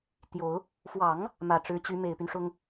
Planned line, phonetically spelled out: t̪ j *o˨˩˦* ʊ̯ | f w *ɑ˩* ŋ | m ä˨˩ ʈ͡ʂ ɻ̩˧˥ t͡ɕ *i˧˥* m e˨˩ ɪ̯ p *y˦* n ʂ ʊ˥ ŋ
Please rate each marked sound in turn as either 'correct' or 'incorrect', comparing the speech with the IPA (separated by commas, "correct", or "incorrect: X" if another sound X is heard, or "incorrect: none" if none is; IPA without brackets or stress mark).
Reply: correct, incorrect: ɑ˨˩˦, incorrect: y˧˥, correct